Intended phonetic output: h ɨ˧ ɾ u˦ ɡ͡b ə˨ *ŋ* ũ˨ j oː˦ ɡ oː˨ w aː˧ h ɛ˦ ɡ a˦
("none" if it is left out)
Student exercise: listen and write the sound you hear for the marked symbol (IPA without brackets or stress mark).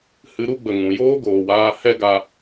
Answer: ŋ